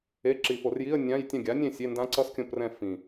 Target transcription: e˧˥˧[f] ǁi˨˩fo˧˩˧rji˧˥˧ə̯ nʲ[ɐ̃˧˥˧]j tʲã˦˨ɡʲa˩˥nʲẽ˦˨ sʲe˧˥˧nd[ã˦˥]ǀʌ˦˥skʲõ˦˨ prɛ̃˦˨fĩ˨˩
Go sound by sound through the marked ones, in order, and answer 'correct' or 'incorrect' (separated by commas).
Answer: incorrect, incorrect, correct